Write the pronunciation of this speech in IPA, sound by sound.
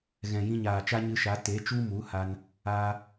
ɣ ɛ̃˨ j ĩ˧ ɲ aː˨ t͡ʃ a˦ ɲ ɨ˧ ʃ a˨˦ t e˨˦ t͡ʃ u˦ m u˨˦ h a˧ n | aː˦

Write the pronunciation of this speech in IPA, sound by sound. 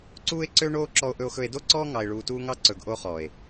ǀ uː˦ e̯ ǀ ø˦ ɳ oː˦ ǁ ɔ˧ o̯ ʔ ɵ˧ o̯ x ɵ˧ e̯ d o˦ ǀ ɔː˦ ŋ ɑ˧ e̯ ɭ uː˧ t uː˦ ŋ ɑ˦ ǀ ɵ˨ ɡ ʔ o˧ χ ɔː˨ e̯

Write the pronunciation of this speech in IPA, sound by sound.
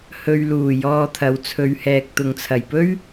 h ɵ˧ ɥ l uː˨˩ j ɔː˧ t̪ʰ ɐ˨˧ w t͡sʰ ɵ˨ ɥ h ɛː˨ k̚ t̪ ʊ˨ ŋ t͡sʰ ɐ˨˩ j p ɵ˥ ɥ

